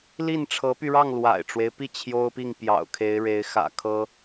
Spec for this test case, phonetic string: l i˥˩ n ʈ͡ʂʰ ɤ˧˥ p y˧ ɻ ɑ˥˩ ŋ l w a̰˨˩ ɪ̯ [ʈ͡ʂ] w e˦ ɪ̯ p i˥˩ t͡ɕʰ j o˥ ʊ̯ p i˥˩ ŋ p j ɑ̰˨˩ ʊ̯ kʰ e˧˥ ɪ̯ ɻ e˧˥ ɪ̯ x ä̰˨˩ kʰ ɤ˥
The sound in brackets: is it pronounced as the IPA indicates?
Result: yes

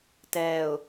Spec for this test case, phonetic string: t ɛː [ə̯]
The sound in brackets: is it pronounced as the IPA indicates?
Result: no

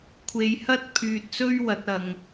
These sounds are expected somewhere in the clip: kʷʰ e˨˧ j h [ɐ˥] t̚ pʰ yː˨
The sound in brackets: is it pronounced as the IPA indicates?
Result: yes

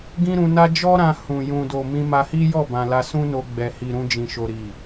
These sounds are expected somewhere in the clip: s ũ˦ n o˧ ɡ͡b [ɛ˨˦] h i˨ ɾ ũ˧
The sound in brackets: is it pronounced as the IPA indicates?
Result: no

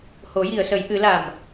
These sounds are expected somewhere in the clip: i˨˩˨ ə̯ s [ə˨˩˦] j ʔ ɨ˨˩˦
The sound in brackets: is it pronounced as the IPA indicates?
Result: yes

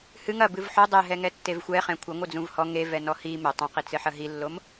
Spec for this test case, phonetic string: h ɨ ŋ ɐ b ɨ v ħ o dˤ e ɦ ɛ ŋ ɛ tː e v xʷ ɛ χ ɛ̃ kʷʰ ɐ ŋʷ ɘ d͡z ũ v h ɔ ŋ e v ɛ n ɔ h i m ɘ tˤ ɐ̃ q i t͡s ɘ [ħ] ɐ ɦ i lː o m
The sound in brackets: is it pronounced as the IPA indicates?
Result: yes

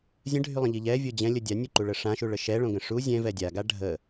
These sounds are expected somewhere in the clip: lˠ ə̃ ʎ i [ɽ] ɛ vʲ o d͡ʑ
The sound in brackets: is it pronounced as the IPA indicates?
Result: no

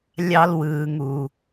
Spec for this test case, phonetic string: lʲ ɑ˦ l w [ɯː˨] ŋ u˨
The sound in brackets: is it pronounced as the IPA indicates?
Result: yes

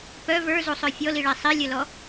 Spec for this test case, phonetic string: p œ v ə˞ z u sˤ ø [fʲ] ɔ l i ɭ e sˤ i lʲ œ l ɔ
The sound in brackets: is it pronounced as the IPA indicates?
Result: yes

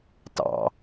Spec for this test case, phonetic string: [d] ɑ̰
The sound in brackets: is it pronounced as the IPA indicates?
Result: no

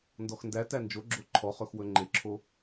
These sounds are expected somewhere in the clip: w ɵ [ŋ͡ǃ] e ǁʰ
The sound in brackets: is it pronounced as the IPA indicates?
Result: yes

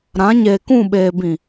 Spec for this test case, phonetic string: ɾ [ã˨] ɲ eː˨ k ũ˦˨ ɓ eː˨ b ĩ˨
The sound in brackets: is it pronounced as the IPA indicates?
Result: no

